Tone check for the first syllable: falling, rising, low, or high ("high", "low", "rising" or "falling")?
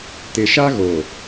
low